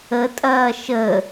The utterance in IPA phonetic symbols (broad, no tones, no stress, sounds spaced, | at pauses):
ə tʼ ɐː ʃ ə